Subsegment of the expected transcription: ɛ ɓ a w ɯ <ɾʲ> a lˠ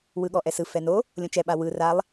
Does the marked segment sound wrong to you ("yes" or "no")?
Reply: yes